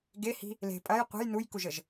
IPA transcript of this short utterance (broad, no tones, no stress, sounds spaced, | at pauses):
ɡ e h i̤ | l e̤ pʼ ɐ j qʷ ə̤ j n u j k u ʒ ə ʒ